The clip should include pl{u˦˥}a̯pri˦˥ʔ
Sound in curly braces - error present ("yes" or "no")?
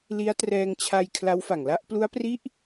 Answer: no